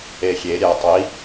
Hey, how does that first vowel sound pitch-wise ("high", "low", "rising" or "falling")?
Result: low